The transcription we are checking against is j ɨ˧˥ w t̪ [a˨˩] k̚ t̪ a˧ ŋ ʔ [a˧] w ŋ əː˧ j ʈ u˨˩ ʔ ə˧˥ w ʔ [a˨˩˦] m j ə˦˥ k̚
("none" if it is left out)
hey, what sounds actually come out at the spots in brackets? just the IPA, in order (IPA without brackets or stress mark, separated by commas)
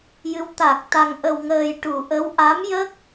a˨˩, ə˧, a˧˥